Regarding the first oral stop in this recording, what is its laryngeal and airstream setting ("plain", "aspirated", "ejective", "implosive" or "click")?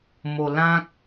plain